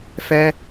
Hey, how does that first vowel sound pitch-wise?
high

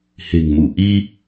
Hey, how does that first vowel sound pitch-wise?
low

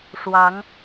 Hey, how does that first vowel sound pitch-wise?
rising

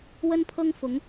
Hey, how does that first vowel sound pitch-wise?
high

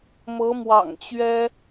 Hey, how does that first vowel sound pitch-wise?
rising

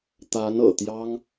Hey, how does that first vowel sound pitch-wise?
rising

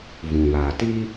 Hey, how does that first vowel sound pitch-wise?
low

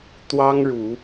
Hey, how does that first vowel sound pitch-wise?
high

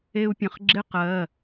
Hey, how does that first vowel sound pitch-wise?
high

